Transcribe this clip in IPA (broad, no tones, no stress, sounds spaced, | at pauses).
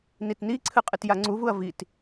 n i t n i ǀʰ ɨ qʼ ɨ t j a ŋ͡ǀ u v u ɐ̯ v i t